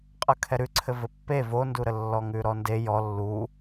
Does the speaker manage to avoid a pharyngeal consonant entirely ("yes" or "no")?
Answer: yes